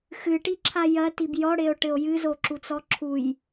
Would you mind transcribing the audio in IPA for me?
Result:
x ɨ ʈ i ǁʰ a j ɐ t i b j ɔ ɽ e o̯ ʈ ɘ o̯ j ɨ z o ǁ u t͡s ɔ ǁʰ u j

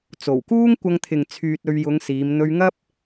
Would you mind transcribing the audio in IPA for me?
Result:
t͡s o˨˩ w k uː˥ ŋ kʷ ɐ˧ ŋ t̪ʰ ɪ˨ ŋ t͡sʰ yː˧ t̚ ɵ˧ ɥ j ʊ˨˧ ŋ s iː˨˧ m n̪ ɵ˧ ɥ ŋ ɐ˥ p̚

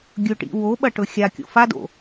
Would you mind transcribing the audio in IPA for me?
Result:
ɡʲ ɵ ʈ ḭ w o ɓ ɐ ʈ ɵ xʲ a kʲ o̰ f a d o̰

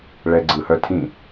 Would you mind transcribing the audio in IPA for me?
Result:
ɭ ɛ ɡ͡ǀ ɯ h œ tʰ ĩ

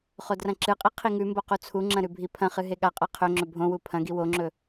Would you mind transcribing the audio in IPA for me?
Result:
χ o d r ɐ̃ ǁ ɨ qʼ i qʰ i ŋ ʉ m b o q u t͡sʰ u ŋ͡ǁ ɐ̃ ɾ ʉ bʱ i pʰ ɐ̃ χ ɨ ɦ e ɠ a qʼ a qʰ ɵ ŋ͡ǁ ɵ bʱ õ w u pʰ ɐ̃ ɡ i w o ŋ͡ǁ ɵ

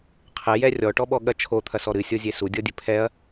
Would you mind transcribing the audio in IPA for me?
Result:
qʰ ɛ j ɛ rʲ ɔ ʈ ɔ ɓ ɔ ɠ ɐ t͡ʃʰ o t̪ʰ ɐ s ɔ ɾ ɨ sʲ o zʲ e s u dʲ ɔ dʲ ɘ pʰ ɛ ɐ̯

